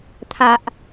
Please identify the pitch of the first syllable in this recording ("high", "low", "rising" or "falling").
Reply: low